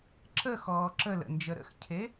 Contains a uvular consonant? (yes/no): no